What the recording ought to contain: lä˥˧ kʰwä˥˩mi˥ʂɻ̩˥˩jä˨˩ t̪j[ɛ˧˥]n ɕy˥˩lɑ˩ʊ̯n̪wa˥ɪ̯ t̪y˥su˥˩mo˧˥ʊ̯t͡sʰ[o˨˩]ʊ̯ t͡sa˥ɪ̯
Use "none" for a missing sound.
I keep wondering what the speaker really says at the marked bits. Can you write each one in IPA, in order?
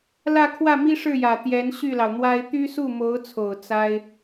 ɛ˧˥, o˨˩

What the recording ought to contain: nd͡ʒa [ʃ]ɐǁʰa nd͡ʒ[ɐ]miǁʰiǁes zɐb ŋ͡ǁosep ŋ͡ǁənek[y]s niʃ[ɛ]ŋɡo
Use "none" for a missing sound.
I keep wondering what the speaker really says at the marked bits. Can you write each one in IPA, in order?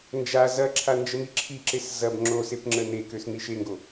z, ə, ø, e

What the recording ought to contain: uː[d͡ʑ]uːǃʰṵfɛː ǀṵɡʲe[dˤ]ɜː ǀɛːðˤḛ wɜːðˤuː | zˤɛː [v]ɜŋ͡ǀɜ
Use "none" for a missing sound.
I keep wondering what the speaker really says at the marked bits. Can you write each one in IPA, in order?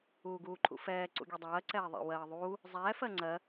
ɡ, dˤ, f

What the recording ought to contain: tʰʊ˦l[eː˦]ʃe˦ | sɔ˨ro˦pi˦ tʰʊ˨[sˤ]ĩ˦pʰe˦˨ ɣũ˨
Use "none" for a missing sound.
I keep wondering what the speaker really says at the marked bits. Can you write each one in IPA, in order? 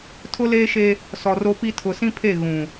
eː˦, s

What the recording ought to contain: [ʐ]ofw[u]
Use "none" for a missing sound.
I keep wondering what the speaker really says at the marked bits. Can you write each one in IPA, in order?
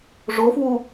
ʐ, u

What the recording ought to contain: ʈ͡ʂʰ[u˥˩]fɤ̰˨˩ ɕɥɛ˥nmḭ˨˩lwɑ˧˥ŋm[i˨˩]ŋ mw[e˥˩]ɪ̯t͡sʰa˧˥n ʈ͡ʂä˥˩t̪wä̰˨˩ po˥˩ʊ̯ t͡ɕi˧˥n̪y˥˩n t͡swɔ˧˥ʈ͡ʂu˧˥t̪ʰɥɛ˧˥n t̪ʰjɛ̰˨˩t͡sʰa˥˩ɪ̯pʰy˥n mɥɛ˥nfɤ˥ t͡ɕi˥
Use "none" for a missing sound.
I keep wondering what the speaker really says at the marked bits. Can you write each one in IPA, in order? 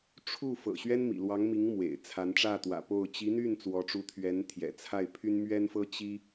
u˥˩, i˧˥, ḛ˨˩

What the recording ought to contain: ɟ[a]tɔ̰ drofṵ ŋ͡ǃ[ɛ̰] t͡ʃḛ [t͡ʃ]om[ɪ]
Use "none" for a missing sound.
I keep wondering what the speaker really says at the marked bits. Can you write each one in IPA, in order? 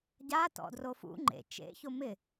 a, ḛ, ç, ɪ

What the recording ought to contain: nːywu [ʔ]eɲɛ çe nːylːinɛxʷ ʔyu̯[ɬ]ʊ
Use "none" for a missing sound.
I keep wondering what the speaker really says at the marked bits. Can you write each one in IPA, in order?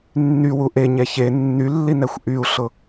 ʔ, ɬ

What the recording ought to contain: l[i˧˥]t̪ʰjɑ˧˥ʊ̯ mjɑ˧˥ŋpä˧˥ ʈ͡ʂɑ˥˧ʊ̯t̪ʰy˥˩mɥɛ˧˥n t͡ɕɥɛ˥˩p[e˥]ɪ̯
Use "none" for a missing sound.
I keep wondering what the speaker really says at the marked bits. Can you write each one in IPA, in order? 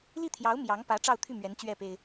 i˥˩, e˥

